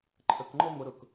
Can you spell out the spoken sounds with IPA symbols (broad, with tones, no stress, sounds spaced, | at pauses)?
ǃʰ ə˧ k ŋ͡ǃ ɔ˥ ŋʷ ə˧ ɾ ʊ˥˩ k